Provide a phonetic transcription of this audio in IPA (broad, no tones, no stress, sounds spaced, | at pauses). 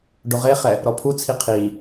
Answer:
ɖ o ʁ e χ ɛ | ɾ ɔ pʰ u t͡sʰ i qʰ i